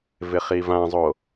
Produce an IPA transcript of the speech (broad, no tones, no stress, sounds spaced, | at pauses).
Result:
v ɪ χ i v ã zˤ o